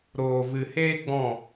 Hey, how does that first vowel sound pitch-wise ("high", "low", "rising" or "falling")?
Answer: low